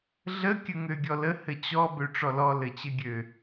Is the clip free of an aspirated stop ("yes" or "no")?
yes